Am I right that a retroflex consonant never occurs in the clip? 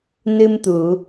yes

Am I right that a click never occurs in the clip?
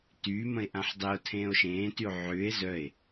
yes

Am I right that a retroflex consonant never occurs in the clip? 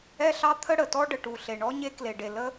no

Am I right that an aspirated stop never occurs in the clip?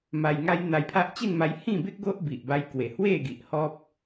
no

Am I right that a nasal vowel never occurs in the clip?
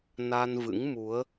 yes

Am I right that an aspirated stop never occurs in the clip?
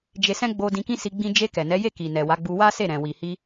yes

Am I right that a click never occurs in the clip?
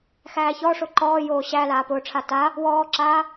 no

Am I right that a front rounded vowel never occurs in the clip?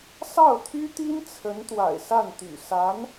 no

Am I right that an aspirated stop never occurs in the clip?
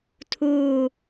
no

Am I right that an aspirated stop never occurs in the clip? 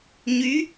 yes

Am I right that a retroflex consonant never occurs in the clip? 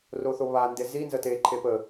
yes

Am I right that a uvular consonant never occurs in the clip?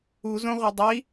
no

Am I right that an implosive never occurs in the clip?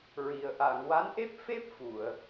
yes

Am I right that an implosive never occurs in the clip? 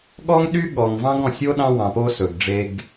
no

